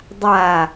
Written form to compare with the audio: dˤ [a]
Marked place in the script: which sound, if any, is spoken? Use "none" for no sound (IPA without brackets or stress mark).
a